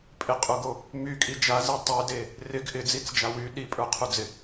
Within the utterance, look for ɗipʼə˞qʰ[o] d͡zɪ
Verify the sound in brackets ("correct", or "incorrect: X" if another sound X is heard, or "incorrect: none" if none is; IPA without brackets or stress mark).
incorrect: u